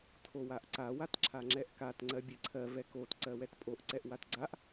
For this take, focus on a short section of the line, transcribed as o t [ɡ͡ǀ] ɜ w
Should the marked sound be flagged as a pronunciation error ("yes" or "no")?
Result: yes